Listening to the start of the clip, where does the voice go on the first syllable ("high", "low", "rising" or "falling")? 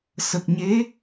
low